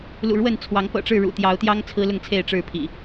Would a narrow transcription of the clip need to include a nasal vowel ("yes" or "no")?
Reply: no